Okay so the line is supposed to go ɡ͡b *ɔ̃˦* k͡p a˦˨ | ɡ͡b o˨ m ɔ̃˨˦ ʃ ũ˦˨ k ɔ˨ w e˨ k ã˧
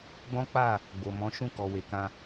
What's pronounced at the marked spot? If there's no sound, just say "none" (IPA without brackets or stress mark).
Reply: ɔ̃˦